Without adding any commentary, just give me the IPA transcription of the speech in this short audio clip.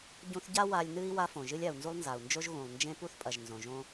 ɟũ˧θɟa˦ wa˧lʲnɨ˦i̯ wa˦fõ˨ ʒɨ˧lʲa˨u̯nzu˧lˠ nza˨u̯nd͡ʒo˦ʒ ɣũ˨lˠ nd͡ʒẽ˦pu˦θpʼɐ˨ʒ nzõ˨ʒõ˦

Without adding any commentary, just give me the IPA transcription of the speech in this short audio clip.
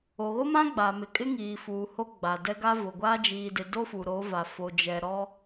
o˨ɣo˦mã˦ ɡ͡ba˨mɪ˨kʼɪ˦ ŋiː˨ fuː˨ho˦ ɡ͡ba˨dɛ˦ɡa˦vʊ˨ ɡʷa˦ d͡ʒiː˨dɪ˨ do˦fu˨ɾo˨˦va˨ fo˨d͡ʒɛ˨ɾɔ˦

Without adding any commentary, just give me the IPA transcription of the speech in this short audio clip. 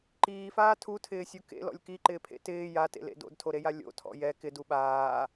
ǃiːfaː tʰutʰɪːsʲu kḛlɔ̰lʲ kiǃɪːpʰḛ tɪː jatḛlḛ do̰dtʰoɾeja lʲo̰tʰɔ̰ jɛ kɪdu ɓaː

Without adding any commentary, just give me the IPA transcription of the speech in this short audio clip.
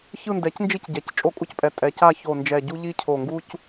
çɯ˦˨ndɛ˩˥cnd͡ʒi˦˨cɟɛ˩˧c t͡ʃʼo˦˨kʼu˦cpʼɛ˩˧ tʼɛ˩˧ca˦˨ ço˨˩nd͡ʒɛ˨˩ɟu˦ʎi˦ cʰo˨˩ŋɡu˦c

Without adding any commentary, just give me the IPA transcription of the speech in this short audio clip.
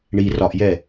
ɳi rɒʔjɛ

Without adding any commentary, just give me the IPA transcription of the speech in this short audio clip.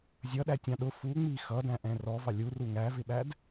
zʲʌɗætʲɑ̃ ɗʊ fuŋ͡mi xʌdæ̃ʔɛ̃ rɔvɑ lʲuru ŋævɪɓæd

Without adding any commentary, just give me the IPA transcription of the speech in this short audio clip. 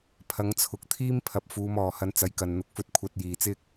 pʰɐ˨˧ŋt͡sʰʊ˨k̚t̪ʰiː˥m pʰɐ˨p̚fuː˨˧m ɔː˨˩ hɐ˧nt͡sɐ˨˥jkɐ˨n n̪ʊ˧k̚fɵ˥t̚ kʷʰɐ˧t̚jiː˨ t͡sɪ˥k̚

